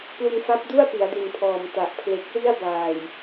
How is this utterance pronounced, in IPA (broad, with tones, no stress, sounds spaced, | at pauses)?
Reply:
p l u˧ n f a˦˥ p̚ d u˥˩ a̯ p i˩˦ a̯ d u˨˩ n pʰ ɔː˨˩ m t a˨˩ ʔ pʰ l e˨˩ k̚ w i˥˩ a̯ b aː˨˩ j